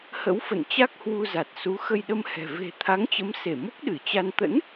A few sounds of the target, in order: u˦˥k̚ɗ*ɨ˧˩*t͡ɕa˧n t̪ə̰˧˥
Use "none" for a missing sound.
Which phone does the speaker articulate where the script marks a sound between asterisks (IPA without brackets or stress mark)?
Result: ɨ˧˩